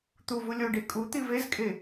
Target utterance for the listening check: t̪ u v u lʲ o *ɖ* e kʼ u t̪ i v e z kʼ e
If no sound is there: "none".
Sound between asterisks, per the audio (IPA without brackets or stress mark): ɖ